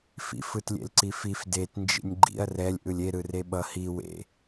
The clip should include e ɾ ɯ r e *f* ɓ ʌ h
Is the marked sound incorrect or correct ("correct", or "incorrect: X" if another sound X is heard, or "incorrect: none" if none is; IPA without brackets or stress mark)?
incorrect: none